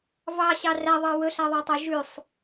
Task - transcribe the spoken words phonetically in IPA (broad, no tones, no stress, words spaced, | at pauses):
vɑɕɑ ræðˤɑ wɵɬæðˤætˤe ʒʉsˤ